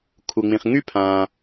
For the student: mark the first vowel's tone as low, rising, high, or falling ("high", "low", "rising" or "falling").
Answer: low